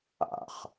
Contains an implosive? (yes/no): no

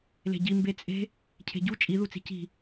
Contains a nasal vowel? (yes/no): no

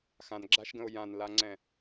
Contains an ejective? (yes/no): no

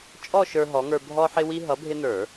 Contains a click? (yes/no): no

